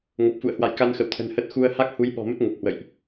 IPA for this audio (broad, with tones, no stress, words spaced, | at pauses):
ŋo˨˩p̚fṵ˧˨ə̯hwa̰˧˨j ka˧nxə̰˧˨wt̪ʰə̤˨˩n hə˦˥t̚ xu˧ə̯ ha˦˥k̚hu˨˦j ɓɔ̤˨˩mə˦˥t̚ ŋə˨˩p̚hwə̰˧˨jʔ